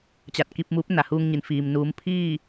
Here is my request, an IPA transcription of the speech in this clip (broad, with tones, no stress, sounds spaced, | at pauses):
t͡ɕ a˧˩ t̚ k i˧ p̚ m uː˧˥ p̚ n a˩ h uː˧ ŋ ɲ i˩ n f iː˩ m n uː˩˧ m pʰ iː˥˨